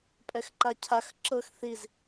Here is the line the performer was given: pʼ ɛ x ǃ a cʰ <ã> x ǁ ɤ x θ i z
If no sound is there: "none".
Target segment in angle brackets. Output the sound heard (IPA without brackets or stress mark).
a